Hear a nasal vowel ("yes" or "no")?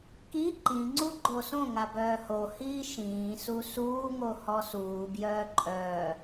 yes